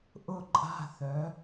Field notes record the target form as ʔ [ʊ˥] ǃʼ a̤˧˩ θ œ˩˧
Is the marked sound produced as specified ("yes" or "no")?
no